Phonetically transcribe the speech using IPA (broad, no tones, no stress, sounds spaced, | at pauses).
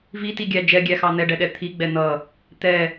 v i t i ɡʲ æ d͡ʒ ɛ ɡʲ æ x ɑ n̪ ɛ ɖ ɛ ɗ ɛ t̪ʰ i ɡ͡b ɛ n̪ ʌ | t̪ ɛ